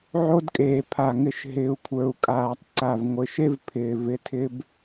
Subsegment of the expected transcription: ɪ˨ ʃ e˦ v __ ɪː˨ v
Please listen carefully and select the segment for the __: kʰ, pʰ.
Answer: pʰ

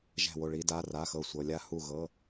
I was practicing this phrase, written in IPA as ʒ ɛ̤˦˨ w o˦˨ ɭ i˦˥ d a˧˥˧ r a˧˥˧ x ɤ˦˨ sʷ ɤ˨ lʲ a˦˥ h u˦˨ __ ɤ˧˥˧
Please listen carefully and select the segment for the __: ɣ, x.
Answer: ɣ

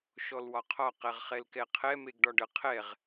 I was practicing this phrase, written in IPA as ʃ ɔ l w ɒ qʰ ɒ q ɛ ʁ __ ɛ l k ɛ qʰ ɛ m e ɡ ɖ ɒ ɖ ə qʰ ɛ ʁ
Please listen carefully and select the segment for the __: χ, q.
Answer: χ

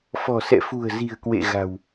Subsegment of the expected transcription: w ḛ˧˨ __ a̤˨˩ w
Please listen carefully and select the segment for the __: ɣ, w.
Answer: ɣ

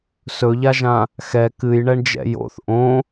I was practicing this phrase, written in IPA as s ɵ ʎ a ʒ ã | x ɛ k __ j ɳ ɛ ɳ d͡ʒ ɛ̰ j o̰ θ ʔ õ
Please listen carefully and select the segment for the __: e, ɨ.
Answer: ɨ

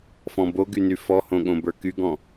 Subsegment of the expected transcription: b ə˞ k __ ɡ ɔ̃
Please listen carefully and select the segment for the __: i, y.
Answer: y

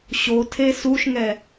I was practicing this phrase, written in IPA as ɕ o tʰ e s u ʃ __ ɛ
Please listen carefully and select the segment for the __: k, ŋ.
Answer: ŋ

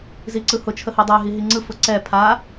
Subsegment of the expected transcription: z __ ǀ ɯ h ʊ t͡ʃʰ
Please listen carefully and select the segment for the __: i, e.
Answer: i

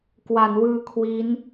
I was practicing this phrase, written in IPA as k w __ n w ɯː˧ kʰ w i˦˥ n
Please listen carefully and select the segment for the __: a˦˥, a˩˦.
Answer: a˩˦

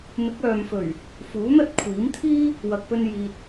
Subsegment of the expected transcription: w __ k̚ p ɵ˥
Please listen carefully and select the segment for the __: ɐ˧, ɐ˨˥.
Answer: ɐ˧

